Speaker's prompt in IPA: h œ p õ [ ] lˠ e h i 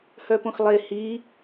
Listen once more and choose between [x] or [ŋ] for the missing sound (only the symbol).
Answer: x